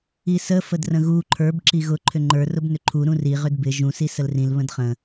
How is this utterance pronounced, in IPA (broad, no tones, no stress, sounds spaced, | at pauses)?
i s ə f ə d r ə̃ ɣ u ǃʰ ə˞ b ǁ i ɣ ʊ ǃʰ ʏ ŋ͡ǃ ə˞ r ʊ b n ʏ ǃʰ u ɾ ũ r i ʁ ʏ d b ɪ ʒ ũ s i s ə l r ĩ l β ə̃ d χ ə̃